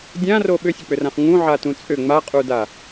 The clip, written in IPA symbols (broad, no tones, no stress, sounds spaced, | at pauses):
dʲ ã r o ɓ ʏ sʲ ə k͡p ʏ r ã χ ŋ ũ ʕ a t ũ t͡sʼ ʏ ŋ͡m a qʼ u d a